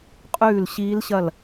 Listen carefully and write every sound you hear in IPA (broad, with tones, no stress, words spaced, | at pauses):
qʼʉː˥˨lɕiː˦˥lɕɐ˥˨l